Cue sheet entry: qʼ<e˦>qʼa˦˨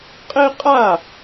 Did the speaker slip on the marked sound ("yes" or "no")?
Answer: no